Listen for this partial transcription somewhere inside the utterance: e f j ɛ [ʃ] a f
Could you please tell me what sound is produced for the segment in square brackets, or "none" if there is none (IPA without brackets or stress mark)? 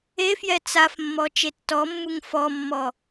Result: t͡s